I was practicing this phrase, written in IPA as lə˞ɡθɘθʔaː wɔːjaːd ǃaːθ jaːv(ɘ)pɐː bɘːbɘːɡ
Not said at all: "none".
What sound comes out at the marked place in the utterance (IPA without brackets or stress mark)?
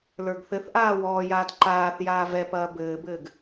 ɛ